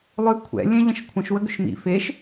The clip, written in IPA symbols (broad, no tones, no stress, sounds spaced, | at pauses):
lˠ ʏ kʷʰ ɛ̰ lʲ ɛ̃ ʎ ə̃ ʃ kʷʰ ə̃ ʃ w ə ɡ ʏ ʃ m ḭ f e ʃ